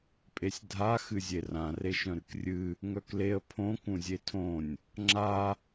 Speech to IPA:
pʼ e sʲ dʱ a x ɨ zʲ e r ã r e ʃ œ̃ ɾ ɨ k rʲ ɨ | ŋ œ k l e ə̯ pʰ õ k ũ zʲ e tʰ õ nʲ | ŋ͡ǁ a

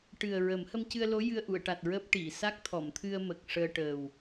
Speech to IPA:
ʈ ɨ˨˩ ə̯ ɹ ə˨˩˦ m h ə˧ m c ɨ˧ ə̯ l o˧˥ j ɨ˧ ə̯ ʔ u˨˩˨ ə̯ ʈ a˨˩ t̚ ɹ əː˦˥ p̚ ʈ i˨˩˨ s a˦˥ k̚ t̪ʰ ɔ˨˩˨ m t̪ʰ ɨ˧ ə̯ m ə˨˩ k̚ ʂ əː˧ ʈ əː˨˩ w

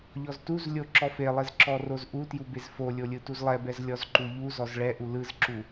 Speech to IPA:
ʎ ɔ z t u z lʲ o ǁ ɔ f e lˠ e z ǁ ɔ r o z ʔ u t j u b e z f o lʲ o lʲ ɯ t u z lˠ ɛ b ɛ z lʲ ɔ z ǃ u ʎ u z ɔ z ɭ ɛ ʔ u l ɯ z ǁ u

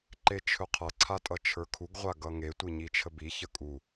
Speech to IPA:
ǃ e t͡ʃʰ ɵ qʰ ʌ ǀʰ a tʼ ʌ t͡ʃʰ ə˞ kʰ u ɡ ʁʷ a ɡ ʌ ŋ e tʷ i ɲ i t͡ʃʰ ə b i ç ə kʼ u

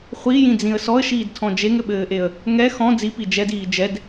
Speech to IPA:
χʷ i j ĩ d͡z ĩ ə̯ s ɔ ə̯ ʃ iː d tʰ ɔ̃ d͡ʒ e ŋ ɘ ɓ ɘː ʔ e ə̯ | ŋ ɛ x ɔ̃ d͡z i p i d͡ʒ ɛ d iː d͡ʒ ɛ d

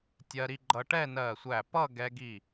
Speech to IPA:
tʲ ɜ˧ ɾ i˧ ɡ͡ǃ ʌ˧ ʈ ɛ˥˧ n ɜ˧˩ sʷ æ˧˩ p ʌ˥˧ ɡ ɛ˧ ɡ i˧˩

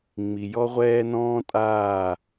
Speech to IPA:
ŋ͡m i˨ j ɔ˦ ʁʷ ɛː˦ n ɔ̃ː˦ tʼ aː˦˨

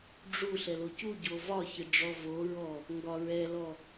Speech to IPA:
ɖ͡ʐ u ɬ ɛ l o c u ɟ o v ɒ ç ɪ ɖ͡ʐ ɔ v o ɹ ɔ | ŋ ɡ ɒ ɹ ɛ l ɔ

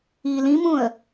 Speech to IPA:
i l ĩ m ũ ə̯

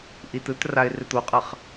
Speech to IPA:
ʔ i t ɯ t r a ɪ̯ r ɪ t̪ o qʼ ʌ χ

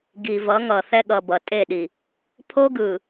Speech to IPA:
ɡ i˨ v ʌ˨˦ ŋ ʌ˨ θ ɛ˦ ɠ ʌ˨ b ʌ˨ tʼ e˦˨ ɗ i˨ | pʰ o˦ ɡ ɯ˨

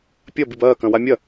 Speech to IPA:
pʲ ɐ b i b ɐː k ɐ̃ w a mʲ ɐ

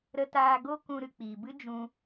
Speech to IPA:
ɾ ə˧ t aː˧ ɡ o˦ k ũ˧ ɾ ɨ˨ k͡p iː˨ b ɨ˦ d͡ʒ ũ˧

